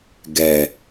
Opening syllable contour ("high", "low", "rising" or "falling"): low